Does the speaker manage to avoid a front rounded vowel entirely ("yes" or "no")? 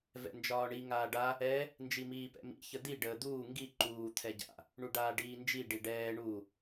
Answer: yes